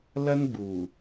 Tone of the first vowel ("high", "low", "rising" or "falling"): high